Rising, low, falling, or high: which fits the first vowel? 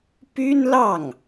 high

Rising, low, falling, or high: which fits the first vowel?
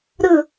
falling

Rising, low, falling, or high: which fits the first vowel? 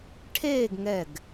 falling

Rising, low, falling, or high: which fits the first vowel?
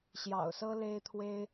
low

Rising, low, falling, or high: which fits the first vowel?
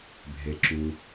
low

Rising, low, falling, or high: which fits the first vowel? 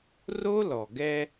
high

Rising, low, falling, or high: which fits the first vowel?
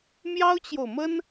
high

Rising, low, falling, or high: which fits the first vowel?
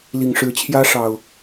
low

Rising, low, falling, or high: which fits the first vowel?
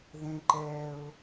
high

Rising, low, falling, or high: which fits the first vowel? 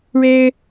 high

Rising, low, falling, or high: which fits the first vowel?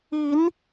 rising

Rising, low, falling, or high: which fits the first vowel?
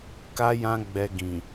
high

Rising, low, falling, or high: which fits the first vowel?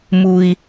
high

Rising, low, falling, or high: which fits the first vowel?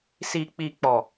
low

